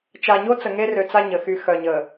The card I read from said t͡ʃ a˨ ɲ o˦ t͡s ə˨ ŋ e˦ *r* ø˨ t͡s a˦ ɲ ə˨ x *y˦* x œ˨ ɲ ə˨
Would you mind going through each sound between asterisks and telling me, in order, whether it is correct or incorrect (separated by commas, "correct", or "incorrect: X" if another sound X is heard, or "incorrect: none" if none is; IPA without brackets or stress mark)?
correct, correct